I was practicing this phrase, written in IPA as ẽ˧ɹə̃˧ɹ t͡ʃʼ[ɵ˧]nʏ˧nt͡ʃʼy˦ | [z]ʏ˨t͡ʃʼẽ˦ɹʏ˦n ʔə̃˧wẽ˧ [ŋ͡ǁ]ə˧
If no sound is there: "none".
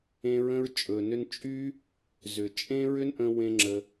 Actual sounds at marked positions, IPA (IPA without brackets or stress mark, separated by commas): ɵ˨, z, ŋ͡ǁ